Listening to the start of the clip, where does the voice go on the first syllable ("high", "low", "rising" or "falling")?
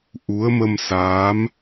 rising